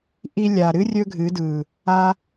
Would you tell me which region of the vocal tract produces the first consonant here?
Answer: throat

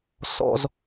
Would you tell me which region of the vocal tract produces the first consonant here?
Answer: tongue tip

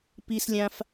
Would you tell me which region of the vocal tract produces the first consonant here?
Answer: lips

